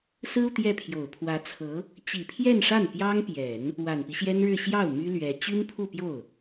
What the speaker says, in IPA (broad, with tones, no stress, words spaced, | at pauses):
sɹ̩˥u˨ t̪jɛ˥˩pʰjo˨˩ʊ̯ pʰwä˧˥t͡sʰɤ˧˥ | t͡ɕi˨˩pʰjɛ˥˧nʂa˥˩n pjɑ˥ŋpjɛ˨˩˦n | wa˨˩npi˦ɕjɛ˥nɻɻ̩˥˧ ɕjɑ˥˩ʊ̯ my˥lɥɛ˧˥ t͡ɕy˥npʰu˥˧pjo˥˩ʊ̯